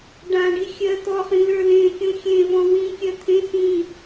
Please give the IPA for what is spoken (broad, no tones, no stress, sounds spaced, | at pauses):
ɖ ã ɖ i xʲ ɜ t̪ ɔ χ ĩ l ə˞ l ẽ kʲ ũ xʲ ẽ v ɔ̃ w ĩ kʲ ɜ t̪ʰ ẽ s ĩ